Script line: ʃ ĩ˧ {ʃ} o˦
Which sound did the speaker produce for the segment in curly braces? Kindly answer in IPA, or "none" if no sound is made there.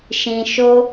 ʃ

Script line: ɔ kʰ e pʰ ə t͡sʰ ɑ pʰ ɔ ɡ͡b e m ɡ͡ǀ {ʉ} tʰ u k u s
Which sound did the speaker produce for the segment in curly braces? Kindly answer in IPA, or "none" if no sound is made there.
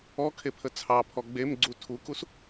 u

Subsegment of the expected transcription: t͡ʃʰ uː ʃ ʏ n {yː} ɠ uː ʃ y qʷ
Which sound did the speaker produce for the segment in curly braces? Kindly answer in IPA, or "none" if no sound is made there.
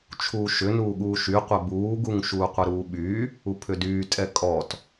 uː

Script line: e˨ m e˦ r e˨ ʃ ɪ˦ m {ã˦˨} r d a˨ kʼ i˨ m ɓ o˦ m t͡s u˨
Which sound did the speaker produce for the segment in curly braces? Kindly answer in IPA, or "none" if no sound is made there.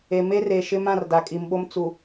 ã˦˨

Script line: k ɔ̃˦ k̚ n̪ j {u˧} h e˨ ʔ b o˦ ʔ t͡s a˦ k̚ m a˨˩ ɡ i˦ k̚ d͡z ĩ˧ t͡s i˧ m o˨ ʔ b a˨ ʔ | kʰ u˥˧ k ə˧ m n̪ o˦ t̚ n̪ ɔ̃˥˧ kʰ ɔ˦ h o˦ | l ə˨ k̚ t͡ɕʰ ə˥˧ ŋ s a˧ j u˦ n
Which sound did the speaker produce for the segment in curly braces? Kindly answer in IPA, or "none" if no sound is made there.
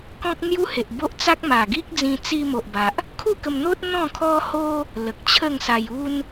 u˦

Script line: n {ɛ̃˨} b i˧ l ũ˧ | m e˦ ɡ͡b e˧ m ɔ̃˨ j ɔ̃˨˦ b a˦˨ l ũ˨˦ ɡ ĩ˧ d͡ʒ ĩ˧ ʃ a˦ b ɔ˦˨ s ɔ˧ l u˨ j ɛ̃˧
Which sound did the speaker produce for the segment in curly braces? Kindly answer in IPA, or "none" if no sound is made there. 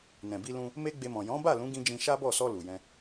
ɛ̃˨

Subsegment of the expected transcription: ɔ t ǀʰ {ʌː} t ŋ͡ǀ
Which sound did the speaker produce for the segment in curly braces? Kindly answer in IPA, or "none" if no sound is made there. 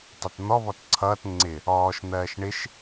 ʌː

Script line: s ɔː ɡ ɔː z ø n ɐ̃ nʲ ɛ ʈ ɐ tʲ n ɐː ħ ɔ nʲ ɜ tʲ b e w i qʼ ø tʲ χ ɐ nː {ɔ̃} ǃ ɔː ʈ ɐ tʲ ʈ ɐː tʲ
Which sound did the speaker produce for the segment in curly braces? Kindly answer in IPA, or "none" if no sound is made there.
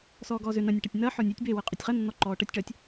ɔ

